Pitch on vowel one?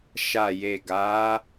low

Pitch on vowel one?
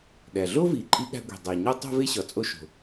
low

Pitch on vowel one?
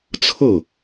falling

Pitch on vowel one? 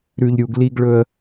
low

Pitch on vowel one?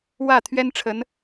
falling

